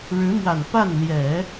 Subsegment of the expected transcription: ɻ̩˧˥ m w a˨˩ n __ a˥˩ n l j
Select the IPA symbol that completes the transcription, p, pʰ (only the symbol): p